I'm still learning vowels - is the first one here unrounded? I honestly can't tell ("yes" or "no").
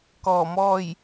no